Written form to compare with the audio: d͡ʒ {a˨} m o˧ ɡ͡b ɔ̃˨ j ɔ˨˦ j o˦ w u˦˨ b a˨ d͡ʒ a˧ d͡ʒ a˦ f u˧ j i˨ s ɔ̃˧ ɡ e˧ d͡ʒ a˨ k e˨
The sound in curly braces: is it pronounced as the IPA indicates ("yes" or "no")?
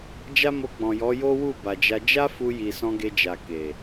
no